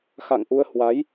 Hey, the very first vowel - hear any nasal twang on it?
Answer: no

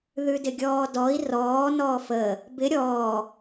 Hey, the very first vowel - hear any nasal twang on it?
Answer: no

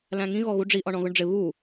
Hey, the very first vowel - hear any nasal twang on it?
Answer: yes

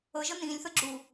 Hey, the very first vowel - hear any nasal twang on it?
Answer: no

